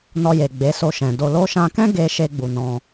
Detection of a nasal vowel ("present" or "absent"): present